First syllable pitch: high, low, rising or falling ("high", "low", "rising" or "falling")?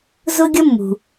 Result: high